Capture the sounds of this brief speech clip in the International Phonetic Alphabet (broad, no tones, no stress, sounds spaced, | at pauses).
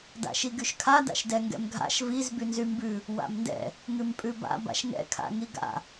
d a̰ ʃ i ɡ y ʃ kʰ a d a̰ ʃ d ɛ ŋ ɡ ɛ̰ m ɡʱ a̰ ʃ v i z b y n z y m b ʉ | w a̰ m n d ɛ̰ | ŋ ʉ m pʼ ʉ b a̰ b a̰ ʃ ŋ ɛ̰ kʰ a̰ ŋ i ɡ a̰